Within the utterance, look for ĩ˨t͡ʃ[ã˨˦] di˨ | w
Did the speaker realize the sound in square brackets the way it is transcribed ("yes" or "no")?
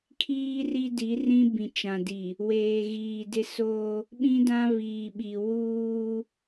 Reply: no